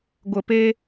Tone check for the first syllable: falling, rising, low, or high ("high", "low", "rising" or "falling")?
low